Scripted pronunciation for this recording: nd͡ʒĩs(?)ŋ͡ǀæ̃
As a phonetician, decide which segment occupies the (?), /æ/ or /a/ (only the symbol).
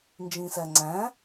æ